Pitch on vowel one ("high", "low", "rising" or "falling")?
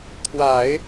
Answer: low